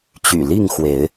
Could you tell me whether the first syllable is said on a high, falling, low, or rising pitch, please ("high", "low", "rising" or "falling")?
low